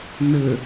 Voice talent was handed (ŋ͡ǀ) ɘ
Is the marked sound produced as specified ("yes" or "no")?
no